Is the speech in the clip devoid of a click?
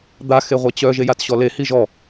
yes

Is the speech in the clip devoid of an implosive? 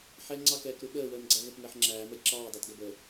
no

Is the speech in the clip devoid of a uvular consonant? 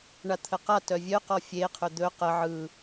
no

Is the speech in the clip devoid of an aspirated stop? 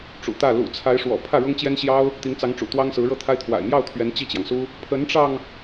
no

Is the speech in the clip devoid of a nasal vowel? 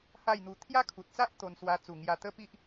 yes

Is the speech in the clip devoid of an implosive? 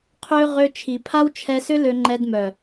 yes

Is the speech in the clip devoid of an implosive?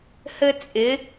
yes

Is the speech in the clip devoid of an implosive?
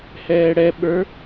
no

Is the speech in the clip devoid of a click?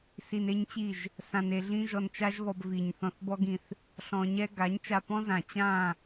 yes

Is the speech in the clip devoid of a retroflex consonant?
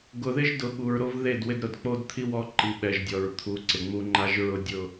yes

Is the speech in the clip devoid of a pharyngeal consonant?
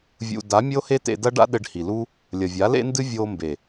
yes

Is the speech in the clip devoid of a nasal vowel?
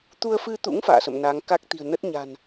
yes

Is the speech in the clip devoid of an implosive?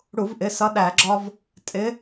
no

